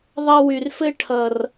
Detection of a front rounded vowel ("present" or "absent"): present